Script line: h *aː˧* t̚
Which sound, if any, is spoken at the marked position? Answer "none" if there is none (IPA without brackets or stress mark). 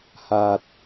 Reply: aː˧